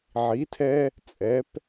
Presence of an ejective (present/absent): present